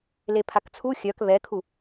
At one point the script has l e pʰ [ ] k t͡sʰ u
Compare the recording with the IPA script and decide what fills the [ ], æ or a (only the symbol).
a